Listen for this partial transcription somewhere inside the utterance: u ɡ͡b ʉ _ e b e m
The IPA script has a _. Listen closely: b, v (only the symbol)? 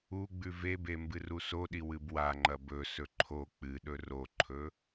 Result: v